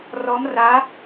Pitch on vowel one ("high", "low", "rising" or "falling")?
rising